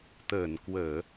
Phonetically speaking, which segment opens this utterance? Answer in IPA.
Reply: t̪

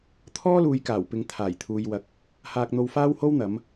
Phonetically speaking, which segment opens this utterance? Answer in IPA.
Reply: t̪ʰ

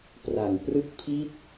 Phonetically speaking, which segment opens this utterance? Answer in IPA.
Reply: p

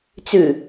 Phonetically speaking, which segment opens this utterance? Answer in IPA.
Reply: t͡s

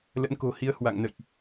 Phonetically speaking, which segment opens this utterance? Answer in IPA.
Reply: l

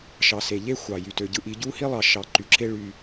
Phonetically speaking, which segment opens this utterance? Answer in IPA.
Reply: ʃ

